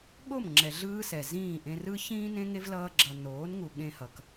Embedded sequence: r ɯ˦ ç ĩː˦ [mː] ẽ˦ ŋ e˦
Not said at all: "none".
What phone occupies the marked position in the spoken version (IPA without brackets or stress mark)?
n